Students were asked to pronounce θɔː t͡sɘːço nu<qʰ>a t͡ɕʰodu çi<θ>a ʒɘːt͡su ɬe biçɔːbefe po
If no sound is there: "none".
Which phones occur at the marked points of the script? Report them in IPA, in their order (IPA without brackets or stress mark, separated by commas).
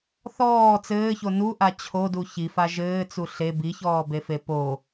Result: ʔ, f